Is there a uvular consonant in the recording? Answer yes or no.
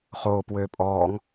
yes